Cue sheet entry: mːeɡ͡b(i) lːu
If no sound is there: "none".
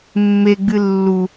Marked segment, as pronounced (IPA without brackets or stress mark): ɨ